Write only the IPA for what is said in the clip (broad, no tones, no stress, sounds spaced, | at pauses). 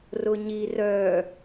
r ʊ ɲ i r œ